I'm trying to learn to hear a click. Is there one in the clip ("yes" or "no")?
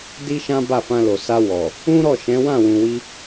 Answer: no